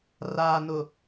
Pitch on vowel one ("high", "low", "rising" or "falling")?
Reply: low